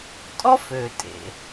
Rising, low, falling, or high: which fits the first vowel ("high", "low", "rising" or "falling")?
high